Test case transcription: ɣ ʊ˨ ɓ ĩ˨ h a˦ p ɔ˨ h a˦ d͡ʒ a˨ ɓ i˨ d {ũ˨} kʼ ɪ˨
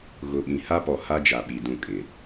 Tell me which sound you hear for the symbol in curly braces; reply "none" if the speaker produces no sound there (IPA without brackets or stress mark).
ũ˦˨